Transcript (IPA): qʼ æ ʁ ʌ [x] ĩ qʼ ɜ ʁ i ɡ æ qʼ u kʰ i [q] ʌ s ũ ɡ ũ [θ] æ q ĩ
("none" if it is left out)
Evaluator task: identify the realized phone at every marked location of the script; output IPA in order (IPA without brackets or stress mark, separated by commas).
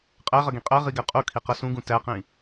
ɡ, q, t